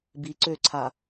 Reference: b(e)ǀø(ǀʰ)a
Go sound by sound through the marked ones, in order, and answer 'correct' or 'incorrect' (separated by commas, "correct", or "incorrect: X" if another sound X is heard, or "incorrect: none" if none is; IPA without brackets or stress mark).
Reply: incorrect: i, correct